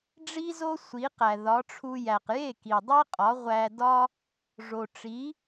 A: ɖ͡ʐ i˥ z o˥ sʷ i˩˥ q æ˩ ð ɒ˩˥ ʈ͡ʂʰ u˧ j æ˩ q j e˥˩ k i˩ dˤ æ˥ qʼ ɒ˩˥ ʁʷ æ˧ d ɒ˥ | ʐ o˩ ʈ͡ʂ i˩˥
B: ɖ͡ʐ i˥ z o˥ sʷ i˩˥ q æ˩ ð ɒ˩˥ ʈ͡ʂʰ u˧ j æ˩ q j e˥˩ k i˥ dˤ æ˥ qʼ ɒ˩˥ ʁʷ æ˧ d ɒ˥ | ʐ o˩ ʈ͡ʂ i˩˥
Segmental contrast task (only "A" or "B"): A